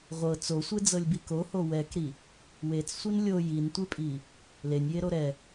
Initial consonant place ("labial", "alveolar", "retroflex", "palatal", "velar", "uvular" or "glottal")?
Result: uvular